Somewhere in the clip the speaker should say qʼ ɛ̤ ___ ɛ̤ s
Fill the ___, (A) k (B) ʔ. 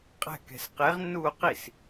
A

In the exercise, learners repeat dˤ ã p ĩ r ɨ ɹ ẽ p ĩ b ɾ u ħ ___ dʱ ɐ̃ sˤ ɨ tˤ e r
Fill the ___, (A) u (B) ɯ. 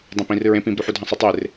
A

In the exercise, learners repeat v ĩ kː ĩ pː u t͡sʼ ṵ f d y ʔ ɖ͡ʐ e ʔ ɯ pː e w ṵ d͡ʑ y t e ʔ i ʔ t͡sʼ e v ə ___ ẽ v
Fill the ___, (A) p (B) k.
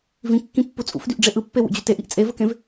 B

